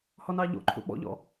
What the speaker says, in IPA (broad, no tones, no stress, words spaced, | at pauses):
hɔnɑʎo̰ǃʰṵ ɓɔ̰ʎɔ̰